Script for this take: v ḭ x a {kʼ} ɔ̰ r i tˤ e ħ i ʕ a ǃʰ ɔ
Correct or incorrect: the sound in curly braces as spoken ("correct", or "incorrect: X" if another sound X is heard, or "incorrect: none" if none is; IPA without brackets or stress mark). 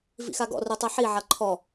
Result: incorrect: ɡ